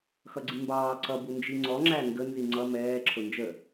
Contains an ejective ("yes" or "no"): no